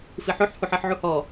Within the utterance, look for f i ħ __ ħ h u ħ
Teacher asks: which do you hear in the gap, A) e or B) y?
B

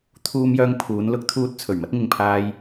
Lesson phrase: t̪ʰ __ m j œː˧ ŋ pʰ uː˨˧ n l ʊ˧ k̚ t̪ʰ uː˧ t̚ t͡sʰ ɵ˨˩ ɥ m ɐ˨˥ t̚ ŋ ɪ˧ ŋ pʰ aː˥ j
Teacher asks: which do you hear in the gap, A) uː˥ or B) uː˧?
B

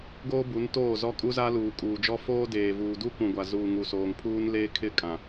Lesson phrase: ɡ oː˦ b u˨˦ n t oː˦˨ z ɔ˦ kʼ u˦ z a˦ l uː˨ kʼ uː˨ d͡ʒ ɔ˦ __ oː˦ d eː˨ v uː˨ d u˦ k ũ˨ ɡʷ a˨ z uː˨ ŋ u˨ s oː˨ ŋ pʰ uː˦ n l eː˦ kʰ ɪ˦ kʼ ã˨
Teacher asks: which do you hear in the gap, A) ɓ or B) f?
B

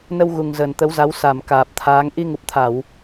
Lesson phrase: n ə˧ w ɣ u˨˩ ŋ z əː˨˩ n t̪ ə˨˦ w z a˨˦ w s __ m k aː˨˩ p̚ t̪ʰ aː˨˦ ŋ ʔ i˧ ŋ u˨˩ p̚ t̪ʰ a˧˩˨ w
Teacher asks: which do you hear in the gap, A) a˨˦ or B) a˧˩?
B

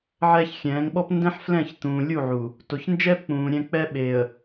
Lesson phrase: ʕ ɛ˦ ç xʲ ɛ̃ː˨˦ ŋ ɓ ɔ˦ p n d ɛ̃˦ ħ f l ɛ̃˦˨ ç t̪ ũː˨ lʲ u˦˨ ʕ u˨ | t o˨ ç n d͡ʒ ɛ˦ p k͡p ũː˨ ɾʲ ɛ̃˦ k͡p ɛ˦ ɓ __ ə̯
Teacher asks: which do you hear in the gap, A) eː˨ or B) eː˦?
A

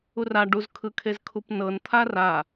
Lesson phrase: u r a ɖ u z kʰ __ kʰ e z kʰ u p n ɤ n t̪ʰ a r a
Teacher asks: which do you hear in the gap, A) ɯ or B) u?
A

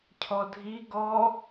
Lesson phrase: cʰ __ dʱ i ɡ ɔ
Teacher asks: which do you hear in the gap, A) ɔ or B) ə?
A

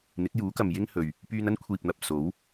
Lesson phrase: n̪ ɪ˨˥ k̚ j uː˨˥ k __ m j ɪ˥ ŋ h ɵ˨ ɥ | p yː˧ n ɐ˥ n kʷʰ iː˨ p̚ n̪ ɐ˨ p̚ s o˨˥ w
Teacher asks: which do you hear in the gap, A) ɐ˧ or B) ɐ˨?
B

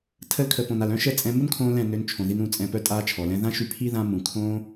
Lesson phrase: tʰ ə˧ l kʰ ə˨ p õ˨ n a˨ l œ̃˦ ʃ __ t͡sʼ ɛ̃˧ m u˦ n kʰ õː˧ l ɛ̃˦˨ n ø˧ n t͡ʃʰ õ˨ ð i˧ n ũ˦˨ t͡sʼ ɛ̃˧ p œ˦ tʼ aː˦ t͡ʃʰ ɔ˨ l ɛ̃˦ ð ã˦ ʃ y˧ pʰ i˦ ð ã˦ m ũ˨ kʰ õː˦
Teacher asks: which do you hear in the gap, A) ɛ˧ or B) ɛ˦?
B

